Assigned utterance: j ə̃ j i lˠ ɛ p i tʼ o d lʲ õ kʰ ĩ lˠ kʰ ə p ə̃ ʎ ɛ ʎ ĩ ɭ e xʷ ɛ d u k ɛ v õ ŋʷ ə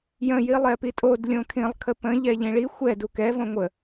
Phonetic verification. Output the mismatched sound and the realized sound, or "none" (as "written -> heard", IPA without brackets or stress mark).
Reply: e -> i